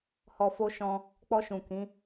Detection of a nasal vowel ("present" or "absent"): present